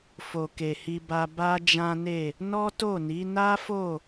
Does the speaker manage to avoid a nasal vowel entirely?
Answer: no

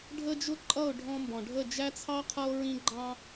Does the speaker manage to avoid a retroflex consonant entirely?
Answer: no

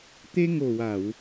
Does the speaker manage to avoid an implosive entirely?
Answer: yes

